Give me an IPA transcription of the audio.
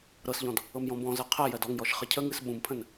ɾɤsʎɔ̃d | ɤmjɔ̃bɔ̃zɜ qʰɜ jɜdɔŋjɔʃ χəcʰəŋɨs ɓũmpʰə̃n

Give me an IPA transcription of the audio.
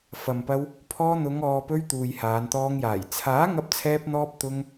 fɐ˨mpɐ˧w | pʰɔː˧ n̪ʊ˨˧ŋɔː˨pɵ˧ɥ t̪uː˨jhaː˨˧nt̪ɔː˧ŋjaː˨˩j t͡sʰaː˨˥ ŋɐ˧p̚t͡sʰɛː˧p̚n̪ɔː˧p̚ t̪ʊ˧ŋ

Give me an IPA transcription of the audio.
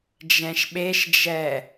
d͡ʒɛ̃ʃɓeʃd͡ʒɛ

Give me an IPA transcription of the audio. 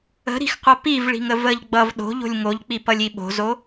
ə̤ɾi̤xqʷʌ pivɭi̤ŋə vəʎ ɡ͡bʌv ɗo̤ʎo̤lʲ ŋoʎk͡pipʌlʲi ɓo̤zo

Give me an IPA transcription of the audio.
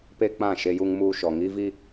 pe˦k͡pã˦˨ ʃe˦ju˦ŋmuː˦ʃɔ˨ ŋiː˦vi˦

